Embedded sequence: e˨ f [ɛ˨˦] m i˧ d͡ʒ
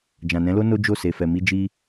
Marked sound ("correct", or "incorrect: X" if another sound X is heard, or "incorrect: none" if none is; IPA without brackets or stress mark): incorrect: ɛ˨